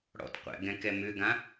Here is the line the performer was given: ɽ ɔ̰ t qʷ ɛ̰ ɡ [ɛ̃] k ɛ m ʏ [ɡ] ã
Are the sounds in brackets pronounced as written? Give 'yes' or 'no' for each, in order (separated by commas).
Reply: yes, yes